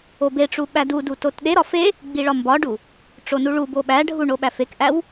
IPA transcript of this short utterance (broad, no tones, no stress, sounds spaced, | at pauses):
o b e ʈ͡ʂ u ɓ æ d u d u t o t ɗ e ɾ ɒ f e | ɡ͡b i ɭ ɒ m b ɒ ɖ u | ʈ͡ʂ o n u ɭ u b o ɓ æ ɖʱ u ɳ o ɓ æ f e k ʔ æ w